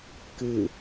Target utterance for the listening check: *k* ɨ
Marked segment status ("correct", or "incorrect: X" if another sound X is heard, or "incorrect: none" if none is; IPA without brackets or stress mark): correct